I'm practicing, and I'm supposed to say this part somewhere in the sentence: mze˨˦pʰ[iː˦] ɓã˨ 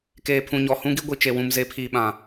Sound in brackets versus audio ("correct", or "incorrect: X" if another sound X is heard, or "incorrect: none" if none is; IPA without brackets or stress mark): incorrect: iː˨